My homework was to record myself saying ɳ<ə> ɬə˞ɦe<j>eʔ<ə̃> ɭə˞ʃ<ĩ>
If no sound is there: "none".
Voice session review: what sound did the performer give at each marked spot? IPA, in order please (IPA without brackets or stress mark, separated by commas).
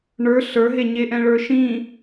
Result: ə˞, ɲ, ɛ̃, ĩ